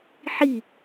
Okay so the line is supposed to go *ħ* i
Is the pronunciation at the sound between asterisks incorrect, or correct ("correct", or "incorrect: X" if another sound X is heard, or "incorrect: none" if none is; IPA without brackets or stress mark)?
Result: correct